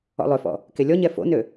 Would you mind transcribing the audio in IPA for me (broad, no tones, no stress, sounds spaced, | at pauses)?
ɔ̰ lˠ ø f ɔ̰ | k e lʲ ɔ ɲ ɛ f o̰ n ø